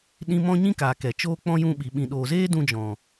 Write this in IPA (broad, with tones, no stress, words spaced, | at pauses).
ɗĩ˦ mɔ̃˦ɲĩ˦kaː˨ kɛ˨t͡ʃoː˦k͡pɔ̃˦ jũ˧ɓi˨ ɓĩ˨ɗoː˨zeː˦ dũ˧d͡ʒɔ̃˨